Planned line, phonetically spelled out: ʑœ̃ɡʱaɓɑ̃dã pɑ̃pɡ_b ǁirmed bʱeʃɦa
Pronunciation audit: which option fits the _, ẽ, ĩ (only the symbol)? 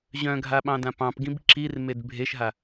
ĩ